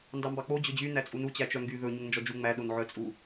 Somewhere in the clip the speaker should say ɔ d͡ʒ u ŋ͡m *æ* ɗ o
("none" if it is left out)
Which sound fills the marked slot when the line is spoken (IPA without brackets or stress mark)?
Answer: æ